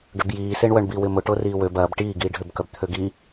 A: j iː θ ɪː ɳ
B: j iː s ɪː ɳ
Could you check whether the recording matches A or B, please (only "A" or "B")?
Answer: B